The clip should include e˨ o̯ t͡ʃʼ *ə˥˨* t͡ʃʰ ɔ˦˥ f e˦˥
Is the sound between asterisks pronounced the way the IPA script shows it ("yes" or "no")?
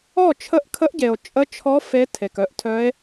no